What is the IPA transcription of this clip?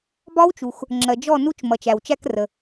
b ɒ˦˥ w t͡ʃ u˩ x | ŋ͡ǁ ɜ˩ d͡ʒ ɔ˥˨ n u˦˥ t͡ʃ m ʌ˩ t͡ʃ æ˩ w t͡ʃ æ˧ k r ə˩

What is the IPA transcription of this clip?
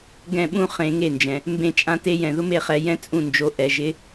ɡ ɛ̃˥˨ ɓ ũ˥ χ ẽ˧˥ ŋ e˥˨ n d͡ʒ ɛ̃˧ | m b ẽ˥˨ t͡ʃʼ ã˥ t e˥ j ɛ̃˧ ð ʊ˥ m e˥˨ χ ɛ˧˥ j ɛ̃˥ t͡sʼ ũ˥˨ n d͡ʒ o˧˥ ʔ ɛ˧˥ ʒ ɪ˧˥

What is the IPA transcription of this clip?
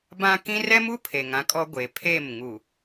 b ã˦ k ĩ˦ r ɛ˦ m u˦ pʰ e˨ ŋ ã˦ kʼ ɔ˦ ɡʷ e˨ pʰ e˦˨ m ŋ u˨

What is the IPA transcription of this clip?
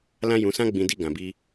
l ã˦ j ũ˧ s ã˦ ɡ͡b ĩ˧ d i˧ ɡ ã˧ b i˦

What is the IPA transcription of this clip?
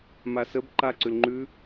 m a s ə b ǃ a ǀ ʉ l ŋ͡ǃ ʉ

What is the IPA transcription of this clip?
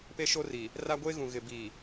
p e˦ ʃ o˦ r i˨ | r a˦ ɡʷ eː˦ ɣ ũ˨ ɣ ɪ˨ b iː˨

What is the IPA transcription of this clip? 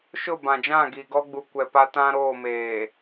ʃ ʊ˦˨ b ã˨ d͡ʒ ã˦˨ ɡ i˨ ɡ ɔ˦ ɡ͡b u˨ kʷ ɛ˨ p a˦ t ã˦ ɾ oː˦˨ m eː˨

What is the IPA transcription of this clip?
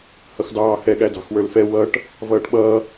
h ʌ x d ɑː h ɛ ɠ æ d ɑ̤ x w ə˞ l f ɛ w ʌ ʈ | v ʌː ʈ ɓ ʌː

